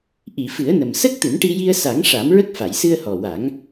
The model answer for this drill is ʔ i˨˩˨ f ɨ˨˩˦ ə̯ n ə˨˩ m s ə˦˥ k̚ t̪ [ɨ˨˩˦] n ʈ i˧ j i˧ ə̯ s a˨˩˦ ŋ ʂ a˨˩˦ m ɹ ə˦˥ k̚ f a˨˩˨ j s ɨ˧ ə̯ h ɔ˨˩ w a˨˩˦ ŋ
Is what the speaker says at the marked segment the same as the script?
yes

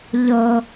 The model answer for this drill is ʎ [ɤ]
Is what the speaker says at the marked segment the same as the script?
yes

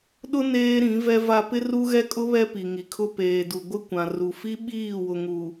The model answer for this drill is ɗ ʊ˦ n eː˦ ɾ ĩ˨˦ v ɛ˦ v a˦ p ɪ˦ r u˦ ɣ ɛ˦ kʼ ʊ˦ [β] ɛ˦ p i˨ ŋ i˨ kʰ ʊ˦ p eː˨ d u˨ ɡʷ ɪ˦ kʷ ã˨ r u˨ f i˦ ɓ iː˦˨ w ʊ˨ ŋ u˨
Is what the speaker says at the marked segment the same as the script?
yes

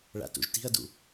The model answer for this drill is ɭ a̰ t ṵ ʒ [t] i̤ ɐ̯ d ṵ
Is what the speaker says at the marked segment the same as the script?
yes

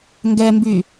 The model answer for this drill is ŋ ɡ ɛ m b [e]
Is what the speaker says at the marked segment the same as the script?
no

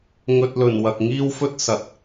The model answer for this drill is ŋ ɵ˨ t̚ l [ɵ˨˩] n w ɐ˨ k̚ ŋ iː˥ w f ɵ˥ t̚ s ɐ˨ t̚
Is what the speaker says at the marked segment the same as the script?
yes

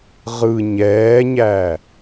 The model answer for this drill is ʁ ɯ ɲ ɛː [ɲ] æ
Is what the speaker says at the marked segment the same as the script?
yes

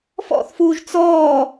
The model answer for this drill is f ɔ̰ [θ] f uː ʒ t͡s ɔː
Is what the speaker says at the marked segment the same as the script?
yes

